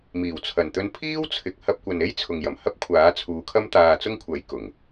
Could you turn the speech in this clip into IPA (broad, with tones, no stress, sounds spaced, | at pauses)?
m iː˨˩ w t͡sʰ ɐ˨˩ n t̪ ɵ˧ n pʰ iː˥ w t͡sʰ ɪ˨ k̚ h ɐ˧ p̚ kʷ ɐ˨ n e˥ j t͡sʰ ʊ˨ ŋ j ɐ˨˩ m h ɐ˥ p̚ kʷʰ aː˨˥ t͡sʰ uː˨˧ kʰ ɐ˥ m t̪ aː˧ t͡s ʊ˥ ŋ kʷʰ ɐ˨˥ j k ʊ˨˩ ŋ